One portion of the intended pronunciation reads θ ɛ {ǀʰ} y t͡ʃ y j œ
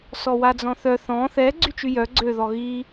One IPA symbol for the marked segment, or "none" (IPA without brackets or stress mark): ɡ͡ǀ